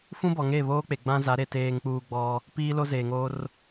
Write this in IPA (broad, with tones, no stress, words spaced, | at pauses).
fũ˦ bɔ˨ŋeː˦˨βoː˦k͡pe˨ ɡ͡bã˦za˨˦ ɾe˨ teː˨ŋk͡puː˨ ɡ͡bɔ˦ | piː˦lo˦zeː˨ŋoː˦r